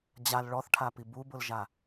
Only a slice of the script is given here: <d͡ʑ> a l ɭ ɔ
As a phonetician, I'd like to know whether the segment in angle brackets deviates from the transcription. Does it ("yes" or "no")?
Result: no